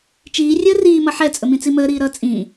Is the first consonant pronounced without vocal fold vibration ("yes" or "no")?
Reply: yes